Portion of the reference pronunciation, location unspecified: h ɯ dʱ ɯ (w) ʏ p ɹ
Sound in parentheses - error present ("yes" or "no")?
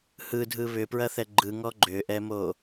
yes